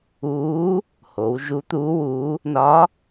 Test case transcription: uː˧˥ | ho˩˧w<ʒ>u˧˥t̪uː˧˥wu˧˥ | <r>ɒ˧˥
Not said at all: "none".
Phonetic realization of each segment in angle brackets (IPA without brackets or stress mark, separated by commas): ʒ, n